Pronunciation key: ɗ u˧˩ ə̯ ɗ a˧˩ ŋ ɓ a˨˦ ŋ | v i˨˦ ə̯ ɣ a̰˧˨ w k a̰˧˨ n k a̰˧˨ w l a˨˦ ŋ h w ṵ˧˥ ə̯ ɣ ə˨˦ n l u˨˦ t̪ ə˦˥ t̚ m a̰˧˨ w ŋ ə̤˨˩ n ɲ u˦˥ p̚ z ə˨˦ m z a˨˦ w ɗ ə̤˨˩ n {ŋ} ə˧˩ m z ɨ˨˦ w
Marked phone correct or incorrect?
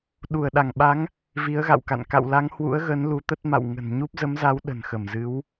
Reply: incorrect